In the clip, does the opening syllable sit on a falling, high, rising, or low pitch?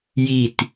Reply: low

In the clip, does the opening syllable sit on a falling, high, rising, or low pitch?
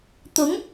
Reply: rising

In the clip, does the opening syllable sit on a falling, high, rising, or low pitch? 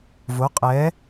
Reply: rising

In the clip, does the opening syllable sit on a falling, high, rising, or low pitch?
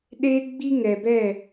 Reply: high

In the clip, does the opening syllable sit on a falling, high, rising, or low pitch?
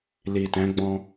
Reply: low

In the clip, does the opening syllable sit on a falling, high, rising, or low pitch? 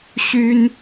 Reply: high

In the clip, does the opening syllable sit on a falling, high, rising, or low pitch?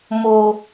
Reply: high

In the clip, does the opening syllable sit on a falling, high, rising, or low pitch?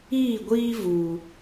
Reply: falling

